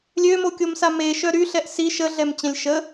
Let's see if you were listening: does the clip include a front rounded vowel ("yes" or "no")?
yes